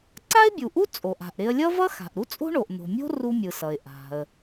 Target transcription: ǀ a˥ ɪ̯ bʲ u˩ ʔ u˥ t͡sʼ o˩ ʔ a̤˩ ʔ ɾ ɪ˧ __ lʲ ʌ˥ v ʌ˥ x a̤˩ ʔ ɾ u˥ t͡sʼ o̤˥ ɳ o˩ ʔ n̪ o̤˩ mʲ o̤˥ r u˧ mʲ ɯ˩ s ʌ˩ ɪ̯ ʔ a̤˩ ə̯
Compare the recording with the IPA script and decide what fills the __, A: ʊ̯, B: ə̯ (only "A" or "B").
B